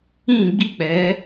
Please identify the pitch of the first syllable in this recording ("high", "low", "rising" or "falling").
falling